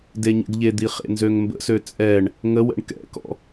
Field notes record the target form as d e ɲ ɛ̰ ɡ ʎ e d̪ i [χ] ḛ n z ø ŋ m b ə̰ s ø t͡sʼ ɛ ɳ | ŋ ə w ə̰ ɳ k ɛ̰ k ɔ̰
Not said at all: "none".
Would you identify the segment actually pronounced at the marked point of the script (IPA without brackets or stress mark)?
χ